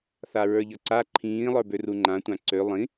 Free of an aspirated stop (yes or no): no